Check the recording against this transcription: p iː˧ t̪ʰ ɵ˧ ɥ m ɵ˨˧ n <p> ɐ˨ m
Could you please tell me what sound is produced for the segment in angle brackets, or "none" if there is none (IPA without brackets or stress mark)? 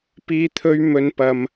p